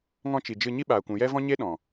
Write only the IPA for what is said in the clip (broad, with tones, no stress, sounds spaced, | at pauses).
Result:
ŋ ɔ̃˧ t͡ʃ i˨ d͡ʒ ɨ˧ ɲ i˦ ɓ aː˨ kʷ ũ˨ j ɛ˦ v ɔ̃˦ ɲ e˦ ɗ ɔ̃˨